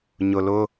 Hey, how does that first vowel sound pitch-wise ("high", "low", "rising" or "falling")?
low